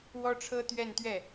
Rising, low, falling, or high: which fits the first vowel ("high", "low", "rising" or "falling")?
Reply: high